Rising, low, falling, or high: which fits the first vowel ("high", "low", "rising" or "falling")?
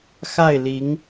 falling